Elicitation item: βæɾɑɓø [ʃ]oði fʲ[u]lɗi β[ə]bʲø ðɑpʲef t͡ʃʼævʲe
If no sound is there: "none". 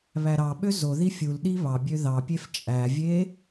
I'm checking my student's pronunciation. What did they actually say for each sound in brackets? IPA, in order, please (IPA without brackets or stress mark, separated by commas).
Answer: z, u, ɑ